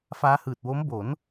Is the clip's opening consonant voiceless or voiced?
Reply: voiceless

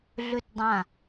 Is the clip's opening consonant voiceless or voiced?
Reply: voiced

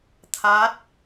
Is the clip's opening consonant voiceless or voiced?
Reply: voiceless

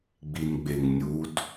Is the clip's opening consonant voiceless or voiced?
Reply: voiced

